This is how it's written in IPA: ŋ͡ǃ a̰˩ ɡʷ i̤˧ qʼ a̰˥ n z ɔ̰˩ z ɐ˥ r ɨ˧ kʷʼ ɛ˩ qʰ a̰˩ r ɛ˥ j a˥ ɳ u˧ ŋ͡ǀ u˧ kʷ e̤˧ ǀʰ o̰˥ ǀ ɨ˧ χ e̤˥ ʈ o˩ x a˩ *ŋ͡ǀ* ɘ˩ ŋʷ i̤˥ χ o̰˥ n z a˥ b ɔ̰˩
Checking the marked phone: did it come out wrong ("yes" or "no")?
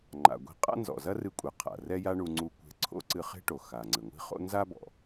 no